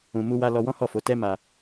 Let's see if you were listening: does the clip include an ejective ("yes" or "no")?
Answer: no